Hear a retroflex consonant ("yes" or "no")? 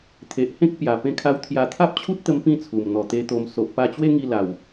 no